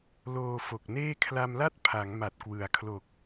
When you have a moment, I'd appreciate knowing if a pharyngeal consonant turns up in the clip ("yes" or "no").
no